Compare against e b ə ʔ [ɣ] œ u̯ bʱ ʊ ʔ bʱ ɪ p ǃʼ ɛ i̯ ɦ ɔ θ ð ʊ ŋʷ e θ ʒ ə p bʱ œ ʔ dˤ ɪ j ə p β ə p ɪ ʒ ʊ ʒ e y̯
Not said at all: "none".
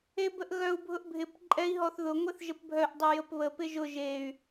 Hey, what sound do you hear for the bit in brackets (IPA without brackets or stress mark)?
ɣ